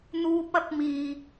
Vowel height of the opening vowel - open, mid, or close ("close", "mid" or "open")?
close